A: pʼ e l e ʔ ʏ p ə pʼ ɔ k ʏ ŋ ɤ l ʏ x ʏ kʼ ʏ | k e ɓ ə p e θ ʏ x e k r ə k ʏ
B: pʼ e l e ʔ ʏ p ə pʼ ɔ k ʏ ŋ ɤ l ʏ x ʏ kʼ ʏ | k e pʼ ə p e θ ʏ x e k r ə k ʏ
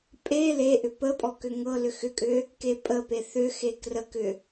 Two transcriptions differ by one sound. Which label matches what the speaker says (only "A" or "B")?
B